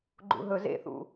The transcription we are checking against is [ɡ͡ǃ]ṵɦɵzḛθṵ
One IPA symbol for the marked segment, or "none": ɡ͡ǃ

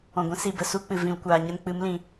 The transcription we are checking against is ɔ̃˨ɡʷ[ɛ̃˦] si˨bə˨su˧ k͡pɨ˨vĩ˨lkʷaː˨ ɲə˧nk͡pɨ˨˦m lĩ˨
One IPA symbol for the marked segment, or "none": ɛ̃˦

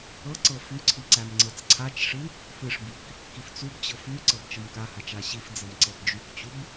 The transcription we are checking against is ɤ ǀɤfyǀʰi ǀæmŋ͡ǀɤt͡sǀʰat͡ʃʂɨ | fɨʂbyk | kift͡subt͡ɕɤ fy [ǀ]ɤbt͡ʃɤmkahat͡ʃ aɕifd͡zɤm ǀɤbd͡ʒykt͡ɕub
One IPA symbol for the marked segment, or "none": ǀ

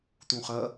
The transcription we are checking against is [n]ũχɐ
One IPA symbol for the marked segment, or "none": t̪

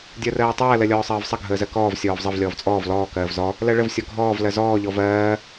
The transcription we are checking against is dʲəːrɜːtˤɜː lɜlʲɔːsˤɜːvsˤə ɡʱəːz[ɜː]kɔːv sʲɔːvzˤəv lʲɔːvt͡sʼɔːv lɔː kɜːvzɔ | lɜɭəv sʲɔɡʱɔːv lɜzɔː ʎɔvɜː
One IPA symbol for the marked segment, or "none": ɜ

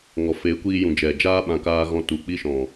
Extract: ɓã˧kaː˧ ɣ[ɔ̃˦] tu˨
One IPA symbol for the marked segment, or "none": ɔ̃˨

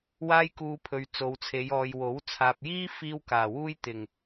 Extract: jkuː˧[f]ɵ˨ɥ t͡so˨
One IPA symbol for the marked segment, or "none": pʰ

